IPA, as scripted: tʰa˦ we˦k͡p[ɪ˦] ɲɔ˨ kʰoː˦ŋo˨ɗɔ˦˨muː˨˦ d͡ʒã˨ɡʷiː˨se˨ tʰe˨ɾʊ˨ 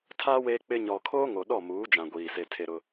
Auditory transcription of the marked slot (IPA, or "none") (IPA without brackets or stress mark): ɪ˦